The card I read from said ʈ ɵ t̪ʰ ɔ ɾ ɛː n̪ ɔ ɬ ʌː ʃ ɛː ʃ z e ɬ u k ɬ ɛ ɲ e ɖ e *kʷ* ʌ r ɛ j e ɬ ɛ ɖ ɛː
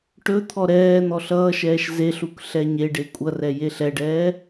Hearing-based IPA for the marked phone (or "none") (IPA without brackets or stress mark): kʷʼ